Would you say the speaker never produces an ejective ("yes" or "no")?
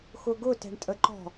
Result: no